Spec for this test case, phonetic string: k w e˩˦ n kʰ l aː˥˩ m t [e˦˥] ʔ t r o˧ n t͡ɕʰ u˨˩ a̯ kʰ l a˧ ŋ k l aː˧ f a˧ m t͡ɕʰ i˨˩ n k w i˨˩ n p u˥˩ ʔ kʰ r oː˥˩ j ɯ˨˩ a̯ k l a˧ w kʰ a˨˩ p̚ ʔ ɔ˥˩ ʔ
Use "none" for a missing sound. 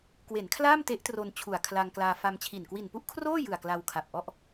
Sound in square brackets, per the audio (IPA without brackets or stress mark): e˦˥